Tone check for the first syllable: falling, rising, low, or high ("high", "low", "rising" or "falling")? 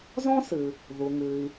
high